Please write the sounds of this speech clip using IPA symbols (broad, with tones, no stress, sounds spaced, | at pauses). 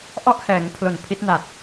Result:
ʔ ɔ˥˩ ʔ h ɛː˩˦ ŋ pʰ l o˨˩ n pʰ i˦˥ t̚ n a˨˩ t̚